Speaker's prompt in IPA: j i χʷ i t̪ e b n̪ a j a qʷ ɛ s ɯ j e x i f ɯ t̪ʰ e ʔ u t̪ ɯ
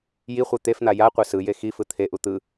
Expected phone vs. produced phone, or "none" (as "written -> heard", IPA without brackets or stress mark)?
b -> f